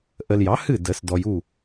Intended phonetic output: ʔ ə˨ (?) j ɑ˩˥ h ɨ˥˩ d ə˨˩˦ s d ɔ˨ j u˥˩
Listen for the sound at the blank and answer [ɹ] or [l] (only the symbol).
l